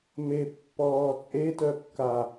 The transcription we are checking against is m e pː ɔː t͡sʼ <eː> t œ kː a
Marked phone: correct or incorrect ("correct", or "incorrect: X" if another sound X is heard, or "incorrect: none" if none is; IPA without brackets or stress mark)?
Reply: incorrect: e